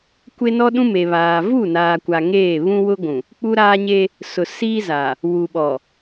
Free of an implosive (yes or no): no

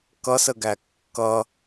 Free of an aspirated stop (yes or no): yes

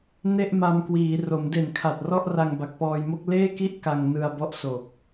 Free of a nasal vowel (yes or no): yes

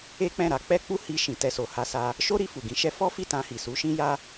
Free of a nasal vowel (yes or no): no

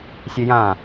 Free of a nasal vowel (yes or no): no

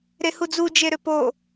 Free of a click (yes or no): yes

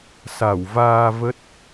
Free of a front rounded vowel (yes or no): yes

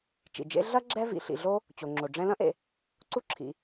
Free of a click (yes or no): no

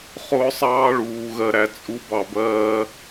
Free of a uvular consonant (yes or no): no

